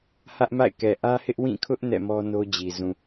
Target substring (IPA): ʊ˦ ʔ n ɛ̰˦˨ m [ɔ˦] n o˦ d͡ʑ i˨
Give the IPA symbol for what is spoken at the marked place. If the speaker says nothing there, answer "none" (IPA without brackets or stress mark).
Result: ɔ˦